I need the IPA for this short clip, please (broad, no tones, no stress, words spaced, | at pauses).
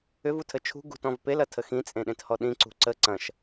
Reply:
ʏv utʰət͡ʃʰṳ ɡṳt ɔ̃vpel ɐtʰəxĩ t͡sʼẽɗẽthɔɗĩ ǀṳǀə ǀɐ̃ʃ